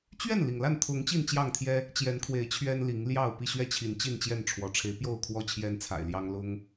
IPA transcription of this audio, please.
t͡ɕ ɥ ɛ˥˨ n l i˩ ŋ l a˥˨ n t̪ʰ ʊ˨˦ ŋ t͡ɕ i˥˨ n t͡ɕ j ɑ˥˨ ŋ t̪ʰ j ɛ˦ | t͡ɕ j ɛ˨˦ n kʰ w e˨˦ ɪ̯ t͡ɕʰ ɥ ɛ˦ n l i˨˦ ŋ l j ɑ˥˨ ʊ̯ p i˥˨ ɕ ɥ ɛ˥˨ t͡ɕʰ i˨˦ n t͡ɕ i˥˨ n t͡ɕ j ɛ˥˨ n ʈ͡ʂʰ w ɔ˨˦ ʈ͡ʂʰ e˨˦ ɪ̯ p j o˥˨ ʊ̯ kʰ w ɔ˦ t͡ɕʰ j ɛ˦ n t͡sʰ a̰˨˩ ɪ̯ l j ɑ˦ ŋ l ʊ˦ ŋ

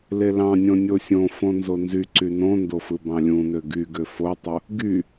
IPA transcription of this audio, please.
l e l ɑ̃ nʲ õ nʲ o sʲ õ f õ n z o n z y ǀ y n õ n d o f ɯ b ɑ̃ lʲ ũ n ø ɡ y ɡ ø f o tˤ u | ɡ y

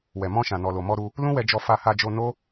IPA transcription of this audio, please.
w ɛ˨ m ɔ̃˧ ʃ ã˨ n ɔ˨ l o˨ m ɔ˧ ɾ u˧ | l ũ˦ w ɛ˧ d͡ʒ ɔ˧ f a˧ h a˧ d͡ʒ o˧ n o˦

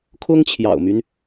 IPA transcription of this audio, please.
kʰ ʊ˥ ŋ t͡ɕʰ j ɑ̰˨˩ ʊ̯ m y˦ n

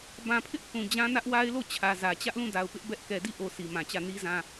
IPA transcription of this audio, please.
b ã˨ pʰ ɪ˦ ʔ θ ũ˨ d͡ʑ ã˦ n ä˦ ʔ w a˦ ɪ̯ l o˦˨ t͡ɕʰ ä˨ z ä˨ t͡ɕ ä˦ ʔ l ũ˦˨ d a˨ ʊ̯ p ɪ˦ ʔ b ɛ˦ ʔ k ɛ˨ d i˦˨ ʔ o˨ s i˨ m ã˨ t͡ɕ ä˦˨ n i˦ z ã˦

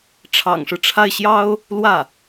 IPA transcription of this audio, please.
ʈ͡ʂʰ ɑ̰˨˩ ŋ ʂ ɻ̩˦ ʈ͡ʂʰ a˥˩ ɪ̯ ɕ j ɑ˥ ʊ̯ | l w ä˥˩

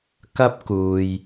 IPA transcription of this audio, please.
k ɐ˥ p̚ k uː˨ j

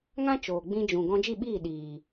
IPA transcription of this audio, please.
ŋ ã˦ t͡ʃ oː˨ ɡ͡b ĩ˧ d͡ʒ ũ˨ ɡ ɔ̃˧ d͡ʒ i˦˨ ɓ iː˦˨ ɗ iː˨

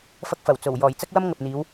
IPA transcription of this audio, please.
f ɐ˧ k̚ f ɐ˨˩ w t͡s o˨˩ w j ɔː˨˩ j t͡s ɐ˥ k̚ w ɐ˥ m ŋ ɐ˨ p̚ n̪ iː˨˧ w

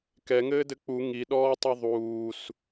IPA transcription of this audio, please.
k ɛ ŋ ɘː d ɘ k͡p u ŋ i ɗ ɔː tˤ ʉ ðˤ uː s

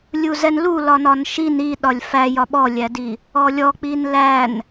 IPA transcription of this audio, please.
lʲ u z ɛ n l u l ɒ n ɒ n ʃ i n i ɗ ɒ lʲ f æ j ɒ ɓ ɔ lʲ æ d i | ɔ lʲ ɔ k͡p i n l æ n

